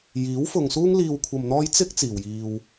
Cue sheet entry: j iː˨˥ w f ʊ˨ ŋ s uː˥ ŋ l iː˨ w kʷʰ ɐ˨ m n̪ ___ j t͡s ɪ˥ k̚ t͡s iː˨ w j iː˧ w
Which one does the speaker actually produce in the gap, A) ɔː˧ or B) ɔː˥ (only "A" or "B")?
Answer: A